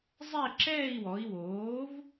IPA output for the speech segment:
zˤ ɛ˥˧ ǁ ɛː˥˧ i̯ w ɔ˩˧ i̯ w oː˩˥ v

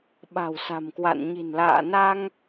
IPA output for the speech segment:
ɓ a̤˨˩ w s a̤˨˩ m k w a̰˧˨ n ɲ i̤˨˩ n l a̰ː˧˨ n a˧ ŋ

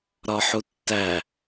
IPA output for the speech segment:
ɾ ɒ ħ u tː æ

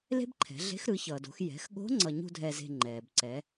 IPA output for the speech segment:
l e̤˥ b ǃʰ ɛ̤˩˧ ɮ e̤˧˥ x ɾ ɯ˩˧ ç ʌː˩ d o̤˩˧ x j ɛ̤˩˧ x ɠ o̤˧˥ ŋ͡ǀ ʌ˧ ɲ ṳ˥ dʱ ɛ˧ z e̤˧ ŋ͡ǃ ɛː˩ b ǀ ɛ˩˧

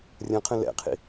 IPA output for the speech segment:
rʲ ɐ̃ qʰ ə̃ l ɛ̰ qʰ ḭ

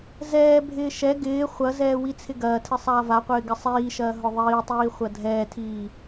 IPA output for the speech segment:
z ɛː bʱ ɪː ʃ ɛ ɡ ɪː χʷ ɐ z ɛː w i t͡sʰ ɪ ɡ ɐː tʰ ɪ sˤ aː v a qʷ ɪː ɡ ɪ sˤ iː ʃ ɐː ɦ ʊ ðˤ iː tˤ iː χʷ ɐ dʱ ɛː tʰ iː

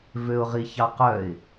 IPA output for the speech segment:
v ø ʊ̯ ʁ i ç ɑ q œ ɪ̯

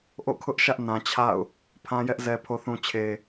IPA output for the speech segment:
ʔ o̰˦˨ kʰ ʊ˦ ʔ ʃ ä˦ ʔ n ã˨ t͡ɕʰ a̰˦˨ ʊ̯ | pʰ ã˦ j ɛ˦ ʔ z ɛ˨ pʰ o˨ θ ũ˨ t͡ɕʰ e˨

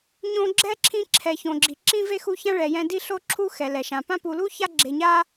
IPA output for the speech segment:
ɲ õ˦ ɡ͡ǁ ɛ˥ ǁʰ ĩ˦ ǁʰ ɛ˨ ç õ˨ ɡ͡ǁ i˨ ǁ ĩ˥ v e˥ x u˦ ç ã˥ ɭ ɛ˨ j ɛ̃˦ d i˥ ɬ o˦ ǁʰ u˦ x ɛ˩ l ɛ˩ ʃ ã˩ p ã˥ p u˨ l u˥ ç a˦ ɡ͡ǁ e˨ ɲ a˦

